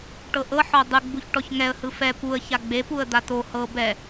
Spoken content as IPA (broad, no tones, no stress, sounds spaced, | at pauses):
ʈ ɤ ʔ ɤ ħ ɔ dˤ ɯ ɡ͡b u ç ʈ ɔ ç ŋ ɛ ə̯ h ɯ f ɛ p u ə̯ ç a ɡ͡b e p u ə̯ d̪ a t o h ɤ b ɛ